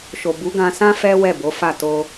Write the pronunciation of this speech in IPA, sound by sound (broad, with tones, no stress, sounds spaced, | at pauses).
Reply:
ʃ o˨ b u˨˦ ɡ ã˧ s ã˦ f ɛ˦ w ɛ˦˨ b o˨˦ f a˦˨ t o˧